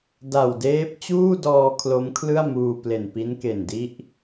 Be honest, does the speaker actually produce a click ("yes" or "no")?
no